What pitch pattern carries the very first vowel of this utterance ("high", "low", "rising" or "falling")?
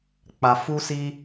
low